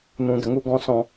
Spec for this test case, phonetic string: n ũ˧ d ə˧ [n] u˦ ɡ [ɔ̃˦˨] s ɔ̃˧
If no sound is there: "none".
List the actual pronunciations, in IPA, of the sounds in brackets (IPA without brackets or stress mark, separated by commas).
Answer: ŋ, ɔ̃˦